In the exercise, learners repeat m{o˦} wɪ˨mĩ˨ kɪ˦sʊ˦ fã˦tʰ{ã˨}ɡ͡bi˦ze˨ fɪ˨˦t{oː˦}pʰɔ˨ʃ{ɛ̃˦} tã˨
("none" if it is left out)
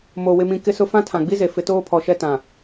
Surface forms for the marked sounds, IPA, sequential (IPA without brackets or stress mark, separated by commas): o˨, ã˨, oː˦, ɛ˦